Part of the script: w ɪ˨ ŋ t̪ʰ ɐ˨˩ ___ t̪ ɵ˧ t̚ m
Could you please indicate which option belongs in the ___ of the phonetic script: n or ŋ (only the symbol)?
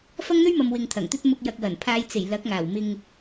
ŋ